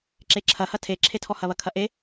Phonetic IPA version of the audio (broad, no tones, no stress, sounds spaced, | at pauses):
ǁ e ǁʰ ɐ h ɐ tʰ e ǁʰ e tʰ ɔ h ɐ β ɐ kʰ ɐ ʔ e